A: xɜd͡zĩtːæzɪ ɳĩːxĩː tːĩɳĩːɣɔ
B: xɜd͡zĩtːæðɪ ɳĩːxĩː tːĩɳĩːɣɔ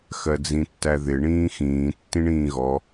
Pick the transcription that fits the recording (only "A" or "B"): B